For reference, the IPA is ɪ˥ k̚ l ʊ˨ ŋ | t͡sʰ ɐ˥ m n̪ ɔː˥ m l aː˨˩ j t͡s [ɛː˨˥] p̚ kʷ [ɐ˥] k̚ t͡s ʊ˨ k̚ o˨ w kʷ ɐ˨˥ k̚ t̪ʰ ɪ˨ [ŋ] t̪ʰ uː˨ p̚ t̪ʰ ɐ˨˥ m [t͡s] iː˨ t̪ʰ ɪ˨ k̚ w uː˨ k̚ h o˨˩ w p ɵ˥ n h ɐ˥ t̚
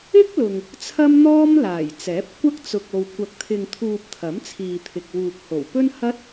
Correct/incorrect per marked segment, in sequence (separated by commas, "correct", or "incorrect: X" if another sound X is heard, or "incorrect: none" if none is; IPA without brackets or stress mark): correct, correct, correct, incorrect: t͡sʰ